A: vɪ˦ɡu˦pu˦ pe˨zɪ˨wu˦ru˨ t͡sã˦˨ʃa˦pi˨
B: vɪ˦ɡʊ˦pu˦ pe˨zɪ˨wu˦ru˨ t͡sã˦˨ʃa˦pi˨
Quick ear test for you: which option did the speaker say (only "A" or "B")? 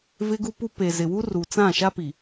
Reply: A